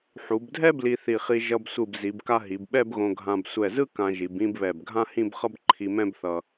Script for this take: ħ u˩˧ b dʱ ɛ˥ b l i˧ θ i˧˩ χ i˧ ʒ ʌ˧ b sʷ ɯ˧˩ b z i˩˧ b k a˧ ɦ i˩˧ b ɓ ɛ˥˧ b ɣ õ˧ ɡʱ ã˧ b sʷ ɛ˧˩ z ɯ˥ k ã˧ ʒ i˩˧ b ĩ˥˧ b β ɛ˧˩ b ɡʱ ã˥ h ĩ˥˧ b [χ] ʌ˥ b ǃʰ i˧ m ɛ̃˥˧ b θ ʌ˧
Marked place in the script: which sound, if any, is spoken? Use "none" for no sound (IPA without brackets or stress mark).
χ